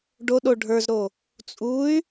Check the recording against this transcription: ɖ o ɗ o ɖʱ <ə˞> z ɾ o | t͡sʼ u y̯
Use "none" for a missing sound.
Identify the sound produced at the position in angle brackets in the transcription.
ə˞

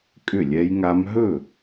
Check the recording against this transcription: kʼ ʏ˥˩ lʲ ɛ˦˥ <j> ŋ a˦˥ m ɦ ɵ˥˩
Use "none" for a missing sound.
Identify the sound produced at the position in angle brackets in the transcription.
j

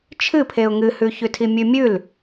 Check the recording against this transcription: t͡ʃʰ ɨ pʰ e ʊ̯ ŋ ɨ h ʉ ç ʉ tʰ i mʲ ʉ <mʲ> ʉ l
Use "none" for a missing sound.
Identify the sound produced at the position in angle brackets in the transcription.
mʲ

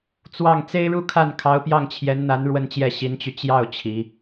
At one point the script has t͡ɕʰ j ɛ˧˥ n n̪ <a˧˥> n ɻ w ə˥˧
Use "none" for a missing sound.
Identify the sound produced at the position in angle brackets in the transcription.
a˧˥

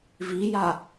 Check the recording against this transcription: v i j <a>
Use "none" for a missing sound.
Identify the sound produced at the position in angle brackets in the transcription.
a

